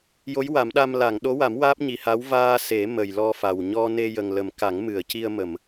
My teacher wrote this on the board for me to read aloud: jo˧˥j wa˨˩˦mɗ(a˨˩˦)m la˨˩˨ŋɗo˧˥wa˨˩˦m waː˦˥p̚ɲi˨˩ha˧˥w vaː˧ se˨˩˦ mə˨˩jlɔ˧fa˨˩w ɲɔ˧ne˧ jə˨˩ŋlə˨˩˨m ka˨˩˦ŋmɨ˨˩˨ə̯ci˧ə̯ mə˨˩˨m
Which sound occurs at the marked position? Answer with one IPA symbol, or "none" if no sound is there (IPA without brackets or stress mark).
a˧